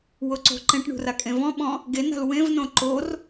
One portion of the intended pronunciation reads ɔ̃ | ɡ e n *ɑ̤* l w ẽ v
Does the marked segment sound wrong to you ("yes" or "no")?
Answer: yes